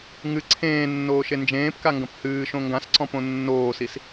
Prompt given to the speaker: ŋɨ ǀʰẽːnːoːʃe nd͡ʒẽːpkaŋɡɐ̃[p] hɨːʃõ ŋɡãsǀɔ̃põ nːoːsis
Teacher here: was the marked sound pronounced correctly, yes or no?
yes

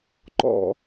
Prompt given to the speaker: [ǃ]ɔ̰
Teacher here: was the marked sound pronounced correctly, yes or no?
yes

